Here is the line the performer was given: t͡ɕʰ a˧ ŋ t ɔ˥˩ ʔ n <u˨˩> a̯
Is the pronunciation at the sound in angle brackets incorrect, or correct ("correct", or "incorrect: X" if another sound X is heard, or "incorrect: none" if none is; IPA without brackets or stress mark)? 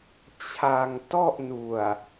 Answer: correct